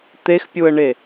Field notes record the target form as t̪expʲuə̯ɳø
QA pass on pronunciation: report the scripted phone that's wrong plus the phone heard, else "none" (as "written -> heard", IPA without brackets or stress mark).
ø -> e